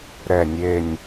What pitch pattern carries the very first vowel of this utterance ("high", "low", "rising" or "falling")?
low